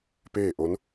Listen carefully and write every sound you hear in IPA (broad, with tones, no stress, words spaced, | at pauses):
peː˥˨ʔo˧˥n